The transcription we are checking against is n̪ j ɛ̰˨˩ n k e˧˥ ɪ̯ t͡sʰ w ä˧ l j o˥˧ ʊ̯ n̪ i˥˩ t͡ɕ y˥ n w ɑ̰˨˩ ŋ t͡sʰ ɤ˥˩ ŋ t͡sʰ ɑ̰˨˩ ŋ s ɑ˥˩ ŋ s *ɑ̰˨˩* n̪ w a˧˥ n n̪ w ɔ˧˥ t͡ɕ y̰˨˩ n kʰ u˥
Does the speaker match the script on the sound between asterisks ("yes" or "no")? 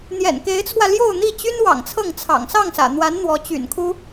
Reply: no